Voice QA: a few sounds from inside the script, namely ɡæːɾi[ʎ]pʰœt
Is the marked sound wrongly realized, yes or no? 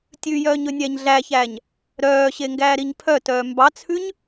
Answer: yes